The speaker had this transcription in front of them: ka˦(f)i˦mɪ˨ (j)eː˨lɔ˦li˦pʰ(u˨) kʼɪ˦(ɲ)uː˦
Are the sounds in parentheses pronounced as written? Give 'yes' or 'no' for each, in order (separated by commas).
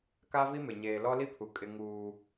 no, no, yes, no